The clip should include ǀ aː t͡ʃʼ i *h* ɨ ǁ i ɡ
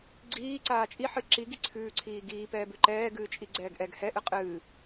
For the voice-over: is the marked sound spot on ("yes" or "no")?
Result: no